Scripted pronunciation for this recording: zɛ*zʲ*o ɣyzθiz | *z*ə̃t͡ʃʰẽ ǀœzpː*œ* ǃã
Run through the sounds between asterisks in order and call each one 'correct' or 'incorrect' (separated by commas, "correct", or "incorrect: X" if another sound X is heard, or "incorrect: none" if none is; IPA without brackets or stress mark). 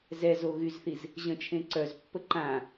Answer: incorrect: z, incorrect: ʑ, incorrect: ə